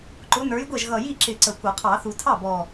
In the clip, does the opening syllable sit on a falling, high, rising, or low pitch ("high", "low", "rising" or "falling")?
rising